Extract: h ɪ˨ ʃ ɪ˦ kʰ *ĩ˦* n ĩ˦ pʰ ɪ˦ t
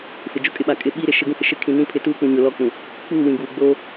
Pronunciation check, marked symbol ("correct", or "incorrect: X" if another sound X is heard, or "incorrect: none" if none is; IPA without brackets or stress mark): incorrect: ĩ˨